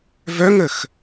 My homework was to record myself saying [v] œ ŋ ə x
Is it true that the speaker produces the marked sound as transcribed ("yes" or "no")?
yes